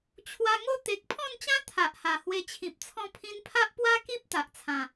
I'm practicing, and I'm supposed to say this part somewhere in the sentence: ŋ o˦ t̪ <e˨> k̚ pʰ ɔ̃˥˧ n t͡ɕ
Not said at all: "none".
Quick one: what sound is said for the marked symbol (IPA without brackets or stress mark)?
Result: e˨